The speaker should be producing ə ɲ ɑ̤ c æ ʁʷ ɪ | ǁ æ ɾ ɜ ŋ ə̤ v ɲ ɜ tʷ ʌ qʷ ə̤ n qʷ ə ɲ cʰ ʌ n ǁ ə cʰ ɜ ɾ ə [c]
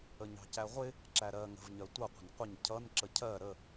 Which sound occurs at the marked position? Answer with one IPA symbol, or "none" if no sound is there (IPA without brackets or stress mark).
none